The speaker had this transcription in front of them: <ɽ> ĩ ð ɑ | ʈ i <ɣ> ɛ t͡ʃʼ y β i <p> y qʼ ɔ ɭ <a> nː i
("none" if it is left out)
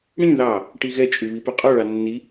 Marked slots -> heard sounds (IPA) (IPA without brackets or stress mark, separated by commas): ɽ, ɣ, p, ɑ